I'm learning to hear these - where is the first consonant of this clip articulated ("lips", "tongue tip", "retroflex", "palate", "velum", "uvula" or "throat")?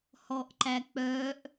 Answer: throat